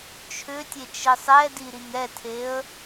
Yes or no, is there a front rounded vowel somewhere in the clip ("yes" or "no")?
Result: yes